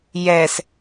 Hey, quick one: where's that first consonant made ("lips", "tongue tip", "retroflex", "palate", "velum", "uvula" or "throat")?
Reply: palate